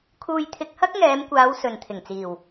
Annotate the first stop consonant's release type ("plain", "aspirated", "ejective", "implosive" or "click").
aspirated